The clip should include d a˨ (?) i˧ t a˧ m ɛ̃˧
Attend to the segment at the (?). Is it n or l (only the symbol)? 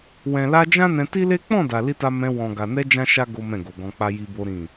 l